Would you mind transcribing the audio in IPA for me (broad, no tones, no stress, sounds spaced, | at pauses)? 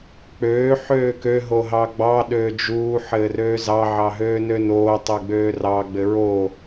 k͡p øː ħ øː k ø ɦ o ɦ ɑ ɡ͡b ɑ ɗ øː d͡ʒ uː ħ ɘː r øː z ɑ ʕ ɑ ɦ øː n ø n oː tˤ ø ɡ͡b øː r ɑ ɡ͡b ɘ ɹ o